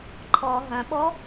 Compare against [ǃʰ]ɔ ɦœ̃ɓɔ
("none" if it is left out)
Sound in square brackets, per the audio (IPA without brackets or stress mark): ǃʰ